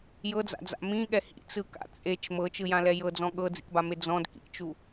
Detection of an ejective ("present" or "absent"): present